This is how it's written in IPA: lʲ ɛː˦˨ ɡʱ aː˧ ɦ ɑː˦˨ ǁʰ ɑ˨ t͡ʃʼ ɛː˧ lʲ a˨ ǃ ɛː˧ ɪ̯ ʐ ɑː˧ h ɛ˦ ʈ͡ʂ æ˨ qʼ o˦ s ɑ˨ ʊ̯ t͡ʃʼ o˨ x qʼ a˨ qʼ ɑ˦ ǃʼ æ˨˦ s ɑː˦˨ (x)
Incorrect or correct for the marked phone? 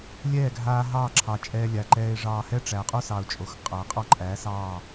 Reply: incorrect: none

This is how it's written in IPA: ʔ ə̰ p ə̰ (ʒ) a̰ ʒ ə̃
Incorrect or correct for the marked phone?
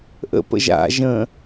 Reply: correct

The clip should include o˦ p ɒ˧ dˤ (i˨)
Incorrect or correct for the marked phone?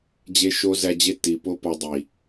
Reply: correct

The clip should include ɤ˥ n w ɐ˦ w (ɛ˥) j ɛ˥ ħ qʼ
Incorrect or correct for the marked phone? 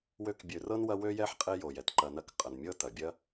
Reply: incorrect: ø˥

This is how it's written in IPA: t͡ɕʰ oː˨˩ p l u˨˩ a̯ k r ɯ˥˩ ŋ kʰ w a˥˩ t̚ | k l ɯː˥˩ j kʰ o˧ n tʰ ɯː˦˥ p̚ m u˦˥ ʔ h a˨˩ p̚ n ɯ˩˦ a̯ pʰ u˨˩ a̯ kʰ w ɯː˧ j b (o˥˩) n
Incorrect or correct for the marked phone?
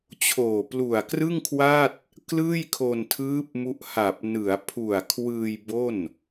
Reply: correct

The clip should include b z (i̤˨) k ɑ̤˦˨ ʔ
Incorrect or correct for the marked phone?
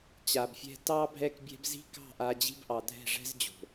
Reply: incorrect: i̤˦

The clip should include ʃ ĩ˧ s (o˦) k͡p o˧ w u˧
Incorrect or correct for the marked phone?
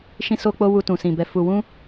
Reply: incorrect: o˧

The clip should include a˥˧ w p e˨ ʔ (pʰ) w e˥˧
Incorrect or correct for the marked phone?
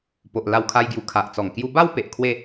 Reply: incorrect: kʰ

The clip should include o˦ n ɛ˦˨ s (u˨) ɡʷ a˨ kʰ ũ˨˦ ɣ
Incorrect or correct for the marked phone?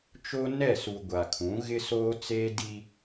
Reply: correct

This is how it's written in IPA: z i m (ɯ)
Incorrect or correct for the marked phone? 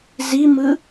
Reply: correct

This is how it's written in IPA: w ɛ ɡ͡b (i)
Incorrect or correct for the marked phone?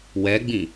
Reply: incorrect: ĩ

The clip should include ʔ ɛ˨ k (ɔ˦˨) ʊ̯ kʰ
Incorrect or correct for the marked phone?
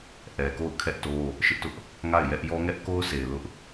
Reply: incorrect: o˦˨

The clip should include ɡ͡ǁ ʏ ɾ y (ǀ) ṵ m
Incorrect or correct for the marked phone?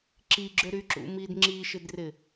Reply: incorrect: ǁ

